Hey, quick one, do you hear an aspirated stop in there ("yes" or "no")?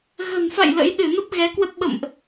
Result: no